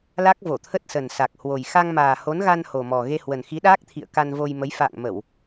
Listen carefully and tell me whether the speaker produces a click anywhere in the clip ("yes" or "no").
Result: no